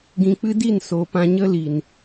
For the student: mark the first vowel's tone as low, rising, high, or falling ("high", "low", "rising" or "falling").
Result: low